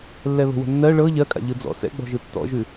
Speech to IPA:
lː ɛ β ə̤ w ə̤ nː ɜ ɭ ɤ ʎ ɜ kʼ a̰ ʎ ɯ d͡z ɔ̰ s ɛ̰ ɡ͡b ɔ̤ ʒ ɯ tː ɔ̰ ʒ ʉ

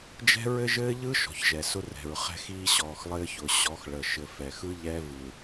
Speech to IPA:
d͡ʒ ɛ̤˦ ɹ ɘ˦ ʒ ɘː˦ ʎ ɯ˦ ʃ ɔ̤˨ ç ʒ ɛ˨ s ʊ˦ r ɛ̤˨ ɹ χ ɛ̤˦ x iː˦ ɕ ɔː˨ x lˠ ɘː˦ ç ʊ˨ ɕ ɔ˨˦ x ɭ ə˨ ʃ ɘ˨ f ɛ˨ x ɯ˦ ʎ ɛ˦ v ɯ˨

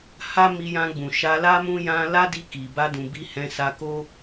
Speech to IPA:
h a˦ m i˧ j ã˧ ɡ͡b ũ˨ ʃ a˧ l a˦ m ũ˦ j ã˦ l a˦ d i˧ k i˨ b a˧ d ũ˨ b i˧ h ɛ̃˧ s a˧ k o˦

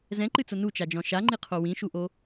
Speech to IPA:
z ɛ̃ ǃ ɨ t͡s o n u t͡ʃ a d͡ʒ ɔ̃ ʃ a ŋ͡ǃ i qʰ o w ĩ ʃ u ʔ o

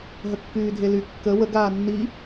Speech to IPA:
ɦ ə kː yː dʱ e l y kː ə w ə ɡ aː nː i

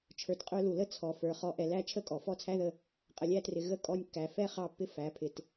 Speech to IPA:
t͡ʃʰ ə˞˨ t qʼ ə˞˧ l u˨ l ə˦ t͡sʰ ɔ˨ f ə˞˨ χ ɔ˧ ʔ ɛ˧ l æ˦ t͡ʃʰ ə˦ kʼ ɔ˨ f ɔ˦˨ t͡sʰ æ˦ ð ə˦˨ | qʼ ə˨ lʲ æ˧ t r ɪ˨ ɣ ə˦ kʼ ɔ˧ nʲ kː æ˨ f ɛ˦˨ χ ɑ˦˨ pː ɪ˦ f æ˨˦ pʰ ɪ˧ t

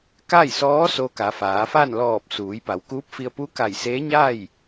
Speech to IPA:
k a˥˨ j s ɔː˧˥ s o˧ k a˩˧ f aː˩˧ f a˥˨ n l ɔː˧˩ p̚ s uː˩˧ j p a˩˧ w k uː˧˥ p̚ f i˧ ə̯ p u˧˥ k a˧˩ j s eː˧˥ ɲ a˥˨ j

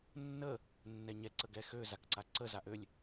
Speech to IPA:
nː ə | nː ɛ ɲ ɛ ǀ ə ɡ ɛ x ø z a k ǀ a ǀ ə z a ʔ ø lʲ

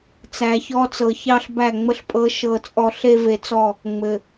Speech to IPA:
t͡s æ˨ ç ɔ˦ t͡s ɤ˨ ç ɑ˦ ɬ b æ˦˨ ŋ͡m ə˦ ɬ pʼ ɤ˦ ʃ ɤ˦˨ t͡sʼ ɔ˦ ɬ e˦ v e˨ t͡s ɔ˦˨ | ŋ͡m ɘ˨

